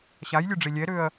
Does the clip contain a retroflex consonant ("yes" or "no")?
yes